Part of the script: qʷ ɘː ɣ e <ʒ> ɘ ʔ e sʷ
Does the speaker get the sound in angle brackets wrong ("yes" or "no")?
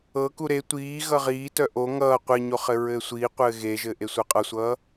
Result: no